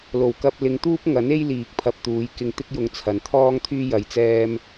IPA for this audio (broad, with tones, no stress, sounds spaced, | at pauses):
l o˨˩ w k ɐ˧ p̚ l ɪ˨˧ ŋ t̪ uː˥ p̚ ŋ ɐ˨˥ n e˥ j l iː˨ k̚ pʰ ɐ˧ p̚ t̪ uː˨˧ j k ɪ˧ ŋ t̪ ɪ˥ k̚ j ʊ˧ ŋ t͡sʰ ɐ˨ n t̪ʰ ɔː˥ ŋ t̪ʰ yː˥ j ɐ˧ j t͡s ɛː˥ m